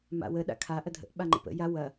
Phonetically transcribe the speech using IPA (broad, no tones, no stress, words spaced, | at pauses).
ma̰wə ɗa̰kʰa ʔɐdʱə̰ʔ ɓaŋ͡ǃə̰pə̰ ja wɐ